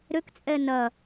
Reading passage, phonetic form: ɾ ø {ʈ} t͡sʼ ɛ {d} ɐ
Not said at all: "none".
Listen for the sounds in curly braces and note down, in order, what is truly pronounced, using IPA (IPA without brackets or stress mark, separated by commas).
k, n